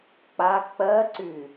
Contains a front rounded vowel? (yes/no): yes